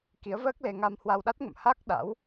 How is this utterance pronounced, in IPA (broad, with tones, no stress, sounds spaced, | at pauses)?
k i˨˦ ə̯ v əː˦˥ k̚ l e˧ ŋ a˧ m h w a˧ w ɗ a˦˥ t̚ ŋ ə̰˧˨ m h a˦˥ k̚ ɗ a̰˧˥ w